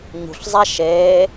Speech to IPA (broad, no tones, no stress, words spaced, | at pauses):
ɲṳɬzˤa ʃeː